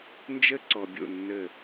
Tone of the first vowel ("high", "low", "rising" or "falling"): high